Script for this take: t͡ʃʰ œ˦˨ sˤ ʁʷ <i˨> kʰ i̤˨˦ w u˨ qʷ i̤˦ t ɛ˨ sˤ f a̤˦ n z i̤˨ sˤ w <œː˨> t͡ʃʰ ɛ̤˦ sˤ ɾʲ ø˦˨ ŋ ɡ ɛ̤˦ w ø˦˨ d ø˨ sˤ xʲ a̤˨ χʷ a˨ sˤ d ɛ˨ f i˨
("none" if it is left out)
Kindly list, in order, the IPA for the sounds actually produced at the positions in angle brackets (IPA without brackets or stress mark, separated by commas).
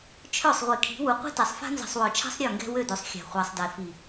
i˨, œ˨